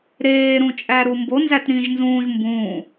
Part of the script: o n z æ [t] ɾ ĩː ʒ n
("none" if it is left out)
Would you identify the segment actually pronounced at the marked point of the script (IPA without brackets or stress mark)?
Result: t